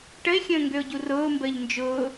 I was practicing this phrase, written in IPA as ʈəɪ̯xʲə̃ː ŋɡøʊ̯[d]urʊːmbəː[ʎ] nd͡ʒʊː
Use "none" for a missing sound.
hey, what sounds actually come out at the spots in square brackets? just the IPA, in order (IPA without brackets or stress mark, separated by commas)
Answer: ɟ, ʎ